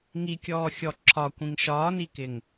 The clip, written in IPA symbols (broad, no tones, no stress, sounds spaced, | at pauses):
ŋ i kʲ ɔː xʲ ɔ ǁʰ ɒ kʷ ĩ ŋ ʃ ɒː n i k ɪ ŋ